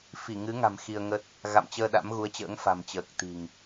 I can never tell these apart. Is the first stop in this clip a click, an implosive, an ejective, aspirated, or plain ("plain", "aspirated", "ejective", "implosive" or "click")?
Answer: plain